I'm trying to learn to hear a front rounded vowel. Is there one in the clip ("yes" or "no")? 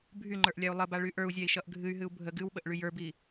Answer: yes